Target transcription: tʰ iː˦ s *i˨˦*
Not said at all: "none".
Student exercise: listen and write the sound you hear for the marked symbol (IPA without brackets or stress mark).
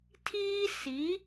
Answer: i˨˦